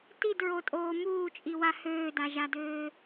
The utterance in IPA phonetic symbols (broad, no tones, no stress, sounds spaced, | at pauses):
t i d ɹ o tʼ oː m uː t͡ʃʼ i w a h øː d a ʒ a d øː